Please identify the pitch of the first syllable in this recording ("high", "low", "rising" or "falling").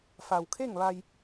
low